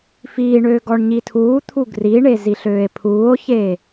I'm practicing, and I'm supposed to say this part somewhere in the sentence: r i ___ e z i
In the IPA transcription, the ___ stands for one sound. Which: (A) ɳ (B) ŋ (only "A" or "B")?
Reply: A